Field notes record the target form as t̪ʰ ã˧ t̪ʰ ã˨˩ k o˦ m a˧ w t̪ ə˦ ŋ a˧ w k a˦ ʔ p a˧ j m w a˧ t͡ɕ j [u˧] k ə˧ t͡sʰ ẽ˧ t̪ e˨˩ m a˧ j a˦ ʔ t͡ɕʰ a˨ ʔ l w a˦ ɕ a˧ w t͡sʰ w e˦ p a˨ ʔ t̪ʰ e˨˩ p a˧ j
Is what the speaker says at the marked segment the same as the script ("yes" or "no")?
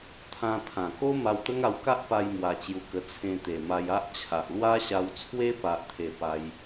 yes